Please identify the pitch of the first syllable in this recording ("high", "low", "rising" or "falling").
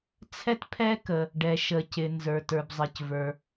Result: high